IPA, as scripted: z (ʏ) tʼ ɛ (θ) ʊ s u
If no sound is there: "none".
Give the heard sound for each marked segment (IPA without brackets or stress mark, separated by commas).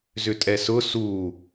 ʏ, s